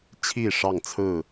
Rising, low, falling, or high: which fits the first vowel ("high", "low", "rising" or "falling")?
falling